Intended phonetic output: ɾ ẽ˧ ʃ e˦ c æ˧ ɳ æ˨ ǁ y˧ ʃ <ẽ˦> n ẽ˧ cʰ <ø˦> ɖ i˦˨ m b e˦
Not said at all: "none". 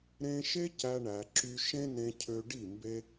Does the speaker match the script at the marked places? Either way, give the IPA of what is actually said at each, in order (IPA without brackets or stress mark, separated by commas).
ẽ˦, ø˧